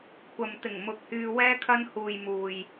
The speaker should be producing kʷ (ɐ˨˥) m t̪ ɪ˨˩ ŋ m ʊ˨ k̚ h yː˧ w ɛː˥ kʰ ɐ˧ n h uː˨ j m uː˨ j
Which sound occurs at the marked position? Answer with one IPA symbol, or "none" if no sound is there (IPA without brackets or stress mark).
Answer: ɐ˨